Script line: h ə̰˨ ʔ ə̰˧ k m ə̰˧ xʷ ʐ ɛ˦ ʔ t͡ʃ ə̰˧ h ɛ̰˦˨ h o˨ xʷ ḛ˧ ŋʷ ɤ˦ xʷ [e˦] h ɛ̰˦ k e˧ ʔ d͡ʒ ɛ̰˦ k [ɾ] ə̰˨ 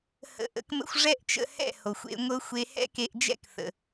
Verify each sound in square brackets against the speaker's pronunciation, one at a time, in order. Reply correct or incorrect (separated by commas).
correct, incorrect